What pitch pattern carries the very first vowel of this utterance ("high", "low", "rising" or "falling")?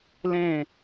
falling